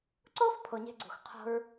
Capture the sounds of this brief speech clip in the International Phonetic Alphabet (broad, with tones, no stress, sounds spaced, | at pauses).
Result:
ǀ o˦ f pʰ o˨ ɲ e̤˧ ɡ͡ǀ ṳ˨ x qʰ o̤˧ ɹ